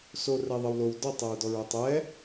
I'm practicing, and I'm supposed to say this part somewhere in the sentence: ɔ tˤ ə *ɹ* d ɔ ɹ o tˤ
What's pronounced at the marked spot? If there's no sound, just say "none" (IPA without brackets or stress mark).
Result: ɹ